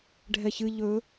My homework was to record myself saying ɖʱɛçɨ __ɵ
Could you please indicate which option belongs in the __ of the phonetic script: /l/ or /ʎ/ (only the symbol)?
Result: ʎ